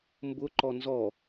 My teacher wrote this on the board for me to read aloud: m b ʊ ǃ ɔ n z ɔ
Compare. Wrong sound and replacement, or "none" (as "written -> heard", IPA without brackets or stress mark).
none